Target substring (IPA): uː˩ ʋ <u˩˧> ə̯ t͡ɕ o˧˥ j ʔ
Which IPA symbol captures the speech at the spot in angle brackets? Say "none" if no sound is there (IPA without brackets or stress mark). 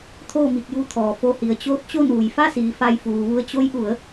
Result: u˧